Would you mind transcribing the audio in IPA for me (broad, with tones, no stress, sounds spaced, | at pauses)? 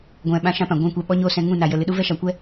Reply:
ɡʷ ɛ̃˨ ɓ ã˦ ʃ ã˦ p ã˨ ɡʷ ɛ̃˦˨ kʷ ɛ˧ ɓ ɔ˦ ɲ oː˦ s ɛ̃˧ ŋ ũ˦˨ n a˨ j ə˨ l ɨ˨ ɗ u˦ v ɛ˦ ʃ a˨ kʷ ɛ˦